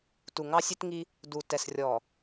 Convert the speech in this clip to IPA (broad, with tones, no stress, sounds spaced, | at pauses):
t u˨ ŋ ɑ˦ sʲ e˦ t ŋ i˦ | d u˨ t ɛ˨ s rʲ ɔ˨